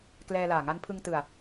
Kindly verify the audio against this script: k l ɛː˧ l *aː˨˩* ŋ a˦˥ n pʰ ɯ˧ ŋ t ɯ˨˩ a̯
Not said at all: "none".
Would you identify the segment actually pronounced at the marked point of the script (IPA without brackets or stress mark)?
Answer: aː˨˩